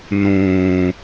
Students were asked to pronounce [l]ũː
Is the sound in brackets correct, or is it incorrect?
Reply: incorrect